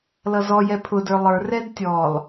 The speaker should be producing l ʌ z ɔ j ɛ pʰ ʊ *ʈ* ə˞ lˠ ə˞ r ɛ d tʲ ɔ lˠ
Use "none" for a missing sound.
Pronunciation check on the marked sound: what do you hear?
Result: d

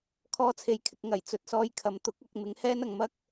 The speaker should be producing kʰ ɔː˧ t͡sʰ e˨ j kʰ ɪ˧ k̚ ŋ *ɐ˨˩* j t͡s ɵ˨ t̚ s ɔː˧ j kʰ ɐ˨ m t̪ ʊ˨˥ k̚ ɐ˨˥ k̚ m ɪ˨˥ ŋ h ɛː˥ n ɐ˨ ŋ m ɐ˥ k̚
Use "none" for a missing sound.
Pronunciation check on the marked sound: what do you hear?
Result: ɐ˨˩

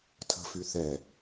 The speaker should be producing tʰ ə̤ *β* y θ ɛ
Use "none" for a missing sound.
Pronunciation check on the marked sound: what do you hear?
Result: f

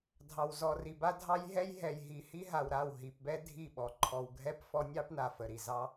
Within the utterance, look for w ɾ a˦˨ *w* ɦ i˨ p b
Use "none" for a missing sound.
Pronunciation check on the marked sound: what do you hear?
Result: w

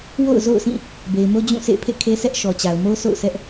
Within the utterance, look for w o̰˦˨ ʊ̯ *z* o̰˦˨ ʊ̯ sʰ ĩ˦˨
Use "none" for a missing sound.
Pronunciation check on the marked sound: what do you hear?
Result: z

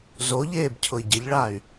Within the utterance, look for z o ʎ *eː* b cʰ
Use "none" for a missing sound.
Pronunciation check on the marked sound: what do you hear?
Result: eː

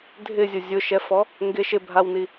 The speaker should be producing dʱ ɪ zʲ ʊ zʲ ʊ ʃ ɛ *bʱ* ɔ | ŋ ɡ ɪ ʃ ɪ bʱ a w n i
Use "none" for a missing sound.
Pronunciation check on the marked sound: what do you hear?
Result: f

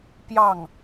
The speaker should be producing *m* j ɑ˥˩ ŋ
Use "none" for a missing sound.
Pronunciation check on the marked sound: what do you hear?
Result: p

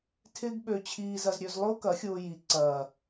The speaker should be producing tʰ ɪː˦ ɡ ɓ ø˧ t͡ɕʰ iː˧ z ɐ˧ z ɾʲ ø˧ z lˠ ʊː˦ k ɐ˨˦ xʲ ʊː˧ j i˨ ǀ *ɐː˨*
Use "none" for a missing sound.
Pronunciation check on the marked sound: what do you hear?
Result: ɐː˨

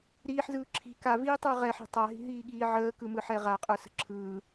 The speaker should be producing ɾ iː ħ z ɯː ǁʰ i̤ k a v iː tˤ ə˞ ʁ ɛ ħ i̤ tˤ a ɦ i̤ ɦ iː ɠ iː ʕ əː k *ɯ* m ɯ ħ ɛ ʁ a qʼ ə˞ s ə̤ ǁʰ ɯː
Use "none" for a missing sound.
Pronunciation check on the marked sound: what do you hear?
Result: ɯ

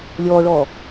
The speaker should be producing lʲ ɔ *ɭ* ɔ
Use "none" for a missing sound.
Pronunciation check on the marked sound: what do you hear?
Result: ɭ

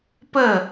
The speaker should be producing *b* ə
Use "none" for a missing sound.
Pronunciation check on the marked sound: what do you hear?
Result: p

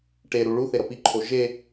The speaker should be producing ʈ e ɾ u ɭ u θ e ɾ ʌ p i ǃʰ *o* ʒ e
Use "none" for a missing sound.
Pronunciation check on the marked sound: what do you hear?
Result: o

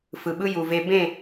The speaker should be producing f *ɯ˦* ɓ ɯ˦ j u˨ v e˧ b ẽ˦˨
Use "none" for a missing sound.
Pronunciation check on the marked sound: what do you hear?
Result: ɯ˨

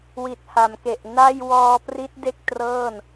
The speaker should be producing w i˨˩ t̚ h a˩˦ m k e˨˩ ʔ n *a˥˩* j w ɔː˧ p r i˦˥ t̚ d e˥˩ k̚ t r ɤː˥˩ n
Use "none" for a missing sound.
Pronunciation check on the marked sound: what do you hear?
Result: a˥˩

